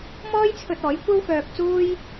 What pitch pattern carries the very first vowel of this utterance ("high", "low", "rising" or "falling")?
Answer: high